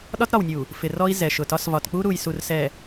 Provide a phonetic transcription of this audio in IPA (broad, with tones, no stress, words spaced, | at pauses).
ɗɒ˦tɾɒ˨wnʲu˨ | fɪ˨rɔ˦i̯ zɛ˨ʃʊ˨tɒ˦s vɒ˨tk͡pu˦ɾu˨jsu˨r sɛ˨